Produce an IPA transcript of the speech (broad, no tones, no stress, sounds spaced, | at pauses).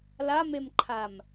l a m e m ǃʰ a m